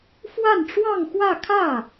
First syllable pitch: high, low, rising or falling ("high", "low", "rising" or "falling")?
falling